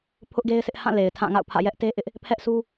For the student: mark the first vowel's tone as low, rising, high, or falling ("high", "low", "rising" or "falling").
high